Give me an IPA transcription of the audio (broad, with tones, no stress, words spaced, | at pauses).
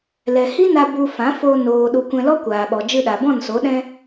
lɛ˨hi˦na˧ bu˧fã˨˦fo˧ noː˨ɗu˨ kʷɛ̃˧lɔ˦ kʷaː˨ɓɔ˨ d͡ʒɨ˧ɗa˨bɔ̃˦˨nso˨˦ ɗɛ̃˧